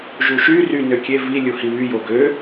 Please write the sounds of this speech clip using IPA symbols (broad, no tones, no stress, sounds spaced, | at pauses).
ʒ u ʃ y r y n ø kʲ e v i lʲ u h i β y j o ɡ ø